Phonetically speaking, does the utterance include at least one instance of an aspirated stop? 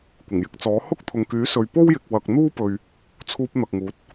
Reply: yes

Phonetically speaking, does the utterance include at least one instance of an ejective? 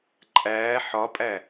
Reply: yes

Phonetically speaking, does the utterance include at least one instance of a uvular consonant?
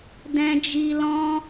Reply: no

